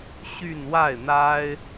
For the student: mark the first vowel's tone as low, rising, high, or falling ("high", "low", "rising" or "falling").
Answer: falling